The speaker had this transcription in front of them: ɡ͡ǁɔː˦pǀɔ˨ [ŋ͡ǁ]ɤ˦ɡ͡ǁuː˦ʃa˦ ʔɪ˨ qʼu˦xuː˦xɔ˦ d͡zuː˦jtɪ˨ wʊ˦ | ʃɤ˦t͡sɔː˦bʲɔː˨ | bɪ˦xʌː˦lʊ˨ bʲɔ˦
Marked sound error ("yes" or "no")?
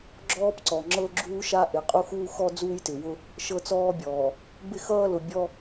no